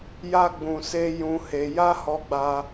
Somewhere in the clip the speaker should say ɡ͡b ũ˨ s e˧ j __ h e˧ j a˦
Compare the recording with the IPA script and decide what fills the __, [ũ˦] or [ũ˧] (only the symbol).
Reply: ũ˧